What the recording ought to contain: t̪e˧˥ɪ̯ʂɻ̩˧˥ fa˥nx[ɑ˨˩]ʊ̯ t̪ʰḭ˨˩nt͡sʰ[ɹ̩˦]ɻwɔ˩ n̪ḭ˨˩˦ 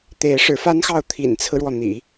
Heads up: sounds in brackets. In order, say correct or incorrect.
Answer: incorrect: ɑ˥˩, correct

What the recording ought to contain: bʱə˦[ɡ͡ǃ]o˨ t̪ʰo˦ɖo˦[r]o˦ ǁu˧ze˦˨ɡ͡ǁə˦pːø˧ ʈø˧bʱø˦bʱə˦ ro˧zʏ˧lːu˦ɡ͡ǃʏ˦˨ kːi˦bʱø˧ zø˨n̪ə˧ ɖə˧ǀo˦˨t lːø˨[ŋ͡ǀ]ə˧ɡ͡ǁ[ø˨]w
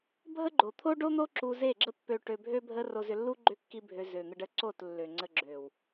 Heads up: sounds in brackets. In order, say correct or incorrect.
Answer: correct, incorrect: n̪, correct, correct

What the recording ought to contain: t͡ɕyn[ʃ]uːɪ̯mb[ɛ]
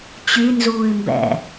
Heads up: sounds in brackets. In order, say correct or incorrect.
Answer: incorrect: z, incorrect: ɛ̰

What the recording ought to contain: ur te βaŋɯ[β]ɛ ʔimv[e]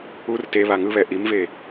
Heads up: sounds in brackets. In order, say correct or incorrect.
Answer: correct, correct

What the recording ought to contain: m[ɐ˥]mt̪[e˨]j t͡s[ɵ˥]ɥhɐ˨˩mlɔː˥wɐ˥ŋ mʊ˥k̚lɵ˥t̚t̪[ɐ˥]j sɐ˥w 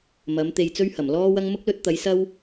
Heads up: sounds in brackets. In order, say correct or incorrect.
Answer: incorrect: ɐ˨˥, incorrect: e˧, correct, incorrect: ɐ˨˥

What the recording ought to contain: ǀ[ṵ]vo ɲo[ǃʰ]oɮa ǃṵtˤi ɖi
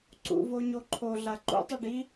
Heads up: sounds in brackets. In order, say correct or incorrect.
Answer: correct, correct

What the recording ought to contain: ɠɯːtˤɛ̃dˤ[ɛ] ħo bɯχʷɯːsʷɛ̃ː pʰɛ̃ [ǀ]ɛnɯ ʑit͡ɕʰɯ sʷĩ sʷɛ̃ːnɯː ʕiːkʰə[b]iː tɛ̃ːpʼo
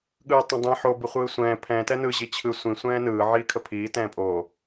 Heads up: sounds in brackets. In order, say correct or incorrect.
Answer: incorrect: ɛ̃, incorrect: t, incorrect: pʰ

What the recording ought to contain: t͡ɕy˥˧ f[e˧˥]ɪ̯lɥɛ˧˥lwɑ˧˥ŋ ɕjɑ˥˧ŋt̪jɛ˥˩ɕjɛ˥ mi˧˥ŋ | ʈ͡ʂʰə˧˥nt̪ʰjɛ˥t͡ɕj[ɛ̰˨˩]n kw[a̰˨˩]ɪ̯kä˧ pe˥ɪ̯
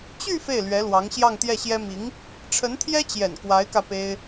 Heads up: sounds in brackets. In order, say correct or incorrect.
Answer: incorrect: e˥˩, correct, incorrect: a˧˥

